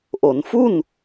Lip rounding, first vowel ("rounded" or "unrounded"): rounded